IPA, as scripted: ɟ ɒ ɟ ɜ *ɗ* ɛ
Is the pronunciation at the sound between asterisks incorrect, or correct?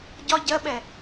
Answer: incorrect